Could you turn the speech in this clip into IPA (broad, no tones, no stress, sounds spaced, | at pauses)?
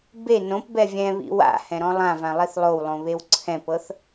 b e n õ p b ɛ vʲ ɛ̃ β ḭ w a̰ h ɛ̃ ɾ ɔ̃ lˠ ã v ã lˠ i θ lˠ o w lˠ õ β e w ǀʰ ɛ̃ p ɤ θ